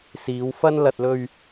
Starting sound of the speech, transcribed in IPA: s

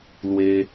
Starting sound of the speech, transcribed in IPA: l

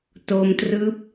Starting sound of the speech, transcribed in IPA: t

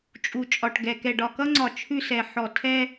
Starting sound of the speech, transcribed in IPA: t͡ʃʼ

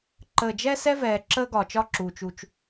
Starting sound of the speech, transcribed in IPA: ǃ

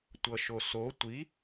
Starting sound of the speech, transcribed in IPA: tʷ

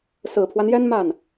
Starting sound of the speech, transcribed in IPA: s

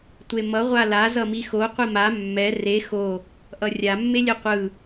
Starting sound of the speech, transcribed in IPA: tʷ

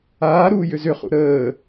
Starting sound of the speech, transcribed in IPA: aː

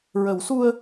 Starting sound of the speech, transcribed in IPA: ɹ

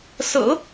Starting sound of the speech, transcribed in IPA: s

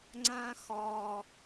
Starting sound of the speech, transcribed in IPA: ŋ͡ǀ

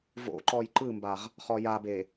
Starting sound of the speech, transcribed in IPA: v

